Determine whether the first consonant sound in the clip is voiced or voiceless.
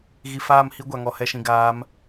voiced